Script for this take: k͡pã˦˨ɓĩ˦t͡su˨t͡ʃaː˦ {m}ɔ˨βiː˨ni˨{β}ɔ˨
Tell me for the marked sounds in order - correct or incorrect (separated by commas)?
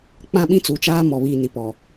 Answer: correct, incorrect